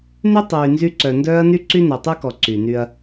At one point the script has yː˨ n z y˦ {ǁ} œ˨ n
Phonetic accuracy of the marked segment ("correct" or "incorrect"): incorrect